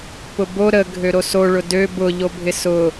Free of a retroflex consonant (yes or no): no